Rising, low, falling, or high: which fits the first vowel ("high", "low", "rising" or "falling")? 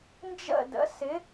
falling